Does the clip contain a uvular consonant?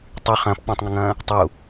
yes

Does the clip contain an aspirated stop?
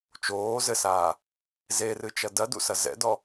no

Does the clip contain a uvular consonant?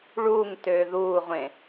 yes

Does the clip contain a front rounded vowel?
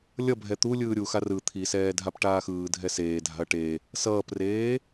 no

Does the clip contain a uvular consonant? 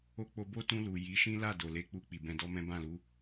no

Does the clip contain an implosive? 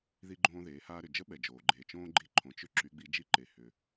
yes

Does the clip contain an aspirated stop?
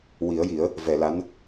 no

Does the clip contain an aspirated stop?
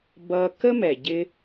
no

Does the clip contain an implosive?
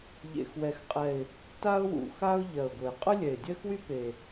no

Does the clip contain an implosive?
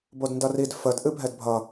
no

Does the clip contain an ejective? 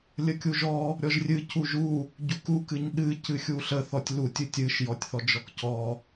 no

